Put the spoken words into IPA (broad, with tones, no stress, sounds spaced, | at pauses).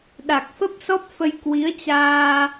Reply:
ɗ a˨˩ k̚ f ə˦˥ p̚ s ɔ˦˥ p̚ f ə˧ j k w i˨˦ ə̯ t͡ɕ aː˧